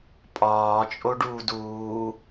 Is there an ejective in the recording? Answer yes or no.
yes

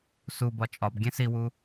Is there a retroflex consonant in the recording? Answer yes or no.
no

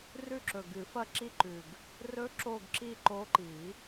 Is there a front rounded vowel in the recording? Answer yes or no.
no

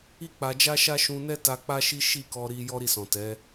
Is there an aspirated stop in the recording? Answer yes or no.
no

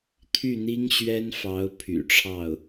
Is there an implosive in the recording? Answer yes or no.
no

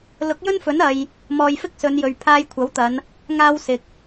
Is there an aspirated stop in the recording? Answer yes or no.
yes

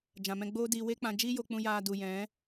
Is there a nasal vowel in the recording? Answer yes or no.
yes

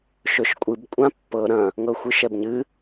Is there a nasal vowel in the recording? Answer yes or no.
yes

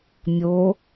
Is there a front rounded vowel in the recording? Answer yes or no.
no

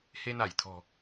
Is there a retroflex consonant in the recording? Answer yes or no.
no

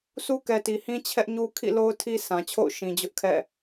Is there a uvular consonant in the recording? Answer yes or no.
no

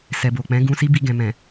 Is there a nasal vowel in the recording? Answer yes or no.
yes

